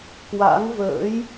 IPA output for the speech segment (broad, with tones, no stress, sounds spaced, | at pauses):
k w a̰˧˥ ŋ v ə̰ː˧˥ j